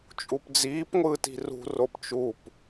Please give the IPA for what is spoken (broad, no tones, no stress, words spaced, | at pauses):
t͡ʃʼupd͡ziːpŋʷɯːt i̤rṳ ropt͡ʃup